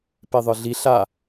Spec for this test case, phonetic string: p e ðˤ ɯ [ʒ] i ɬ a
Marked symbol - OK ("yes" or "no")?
no